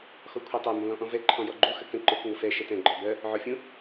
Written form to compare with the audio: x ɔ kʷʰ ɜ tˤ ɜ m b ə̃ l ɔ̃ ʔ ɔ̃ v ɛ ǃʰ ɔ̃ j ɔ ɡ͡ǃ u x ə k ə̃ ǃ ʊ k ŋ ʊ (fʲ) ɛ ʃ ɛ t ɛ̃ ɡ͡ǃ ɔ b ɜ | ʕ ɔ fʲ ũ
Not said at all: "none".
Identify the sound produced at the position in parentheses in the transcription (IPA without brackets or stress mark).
f